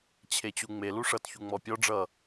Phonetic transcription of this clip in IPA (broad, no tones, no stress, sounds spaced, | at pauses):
t͡ɕʰ e t͡ɕ u ŋ͡m e l u ʂ ʌ t ç u ŋ͡m ɔ pʲ ɔ ɖ͡ʐ ʌ